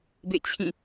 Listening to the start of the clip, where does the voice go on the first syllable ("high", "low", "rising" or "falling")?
falling